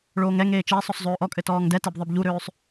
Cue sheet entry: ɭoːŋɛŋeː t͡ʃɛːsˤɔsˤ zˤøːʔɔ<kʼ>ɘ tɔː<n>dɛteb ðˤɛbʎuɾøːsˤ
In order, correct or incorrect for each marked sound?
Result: correct, incorrect: ŋ

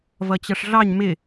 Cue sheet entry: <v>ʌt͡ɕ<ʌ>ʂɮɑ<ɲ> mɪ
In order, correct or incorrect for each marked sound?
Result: correct, correct, correct

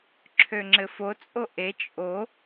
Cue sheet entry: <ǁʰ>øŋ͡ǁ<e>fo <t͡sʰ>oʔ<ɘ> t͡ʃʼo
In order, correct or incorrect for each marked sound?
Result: correct, incorrect: ɘ, incorrect: t͡sʼ, incorrect: e

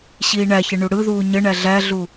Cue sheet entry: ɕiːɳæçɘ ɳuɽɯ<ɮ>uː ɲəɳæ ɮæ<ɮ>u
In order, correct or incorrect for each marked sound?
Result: incorrect: ð, correct

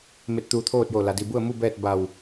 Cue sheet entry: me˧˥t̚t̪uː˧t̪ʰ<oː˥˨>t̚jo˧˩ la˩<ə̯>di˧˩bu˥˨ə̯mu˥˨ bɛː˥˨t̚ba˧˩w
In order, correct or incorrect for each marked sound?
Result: correct, incorrect: none

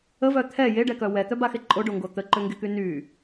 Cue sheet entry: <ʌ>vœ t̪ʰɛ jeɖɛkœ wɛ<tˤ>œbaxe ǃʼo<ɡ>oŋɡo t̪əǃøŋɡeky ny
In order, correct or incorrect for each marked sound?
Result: incorrect: ə, incorrect: t̪, incorrect: ɖ

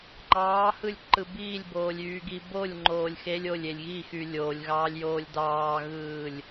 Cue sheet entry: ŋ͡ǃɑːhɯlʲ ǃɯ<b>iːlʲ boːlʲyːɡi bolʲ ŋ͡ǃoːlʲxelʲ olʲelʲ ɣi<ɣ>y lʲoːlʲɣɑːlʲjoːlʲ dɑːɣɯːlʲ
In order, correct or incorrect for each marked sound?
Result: correct, incorrect: x

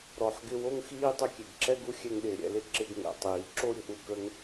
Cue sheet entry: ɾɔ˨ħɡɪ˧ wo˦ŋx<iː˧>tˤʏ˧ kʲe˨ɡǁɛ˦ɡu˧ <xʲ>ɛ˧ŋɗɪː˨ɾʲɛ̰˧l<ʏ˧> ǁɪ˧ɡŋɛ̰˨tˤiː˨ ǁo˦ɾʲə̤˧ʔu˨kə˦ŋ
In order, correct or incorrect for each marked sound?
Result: incorrect: iː˦, correct, incorrect: ɪ˧

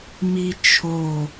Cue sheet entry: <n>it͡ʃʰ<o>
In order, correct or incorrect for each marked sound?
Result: incorrect: m, correct

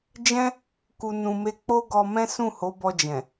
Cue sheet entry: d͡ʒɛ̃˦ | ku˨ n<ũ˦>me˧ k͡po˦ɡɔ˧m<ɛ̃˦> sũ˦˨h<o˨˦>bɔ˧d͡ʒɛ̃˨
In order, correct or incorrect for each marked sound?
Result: incorrect: ũ˨, correct, correct

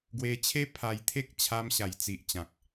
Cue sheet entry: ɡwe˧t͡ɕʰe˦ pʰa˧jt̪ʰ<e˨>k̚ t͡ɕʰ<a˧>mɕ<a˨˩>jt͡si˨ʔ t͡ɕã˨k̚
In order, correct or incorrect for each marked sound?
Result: incorrect: e˦, correct, correct

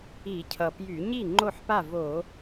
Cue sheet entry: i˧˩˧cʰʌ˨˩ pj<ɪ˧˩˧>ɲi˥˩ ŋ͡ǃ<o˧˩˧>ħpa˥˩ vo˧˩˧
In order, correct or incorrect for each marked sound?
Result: incorrect: y˧˩˧, incorrect: o˥˩

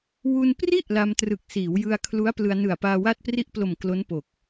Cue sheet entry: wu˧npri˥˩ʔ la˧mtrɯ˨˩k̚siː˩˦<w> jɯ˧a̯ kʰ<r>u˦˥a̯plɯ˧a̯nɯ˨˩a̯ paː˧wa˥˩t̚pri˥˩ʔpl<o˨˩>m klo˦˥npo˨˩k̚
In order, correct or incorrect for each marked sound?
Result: correct, incorrect: l, correct

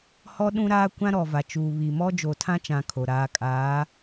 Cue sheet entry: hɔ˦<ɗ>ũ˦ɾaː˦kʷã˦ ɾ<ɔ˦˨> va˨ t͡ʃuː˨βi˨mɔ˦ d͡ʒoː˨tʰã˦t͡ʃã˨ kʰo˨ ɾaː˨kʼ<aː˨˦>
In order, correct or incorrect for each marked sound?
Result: correct, incorrect: ɔ˨, correct

